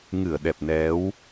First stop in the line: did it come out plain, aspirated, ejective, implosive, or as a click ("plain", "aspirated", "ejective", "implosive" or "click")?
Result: implosive